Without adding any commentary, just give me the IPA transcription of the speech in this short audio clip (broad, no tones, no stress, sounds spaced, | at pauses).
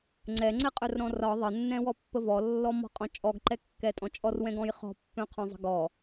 ŋ͡ǀ ɛ ŋ͡ǀ ɛ qʼ œ r ɾ ɔ̃ r ɒ ðˤ ə nː ɛ̃ w ɔ pː ə v ɔ lː ɔ m ɔ̤ qʼ ɔ̃ t͡ʃʼ ɔ ɡ ǃ ɛ kː ɛ tʼ ɔ̃ t͡ʃʼ ɔ r w ɛ̃ ɡ ɔ̃ j χ ɔ̤ pː œ̃ qʰ œ̃ zˤ ə̤ ɡ ɔ